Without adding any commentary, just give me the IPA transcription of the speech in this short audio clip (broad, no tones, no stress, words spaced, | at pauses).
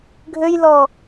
ɡʱøjlɔ